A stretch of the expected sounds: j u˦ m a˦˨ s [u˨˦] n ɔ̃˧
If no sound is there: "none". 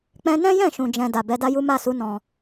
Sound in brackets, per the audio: u˨˦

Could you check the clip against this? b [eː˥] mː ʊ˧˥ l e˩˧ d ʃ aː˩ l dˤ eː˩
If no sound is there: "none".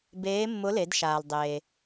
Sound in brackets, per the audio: eː˧˥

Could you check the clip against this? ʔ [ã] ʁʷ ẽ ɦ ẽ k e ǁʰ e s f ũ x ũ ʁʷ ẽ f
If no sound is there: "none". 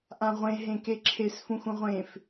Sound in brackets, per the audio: ã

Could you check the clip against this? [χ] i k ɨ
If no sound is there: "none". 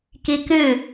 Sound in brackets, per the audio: k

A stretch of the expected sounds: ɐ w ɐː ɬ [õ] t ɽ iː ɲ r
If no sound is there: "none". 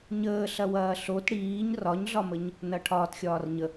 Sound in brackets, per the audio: o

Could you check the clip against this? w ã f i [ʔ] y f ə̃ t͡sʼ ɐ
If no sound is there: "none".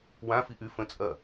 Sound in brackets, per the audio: ʔ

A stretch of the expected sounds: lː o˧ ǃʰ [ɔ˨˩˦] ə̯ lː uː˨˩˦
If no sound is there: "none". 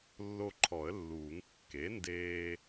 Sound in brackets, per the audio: ɔ˨˩˦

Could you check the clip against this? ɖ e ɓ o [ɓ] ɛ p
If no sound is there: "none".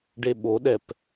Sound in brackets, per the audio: ɗ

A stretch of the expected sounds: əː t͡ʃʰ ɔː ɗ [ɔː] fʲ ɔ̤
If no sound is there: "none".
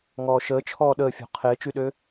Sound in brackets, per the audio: əː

